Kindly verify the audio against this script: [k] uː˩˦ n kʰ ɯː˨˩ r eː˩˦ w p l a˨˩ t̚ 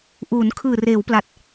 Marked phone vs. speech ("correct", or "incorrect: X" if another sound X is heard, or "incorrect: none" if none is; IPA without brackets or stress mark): incorrect: ʔ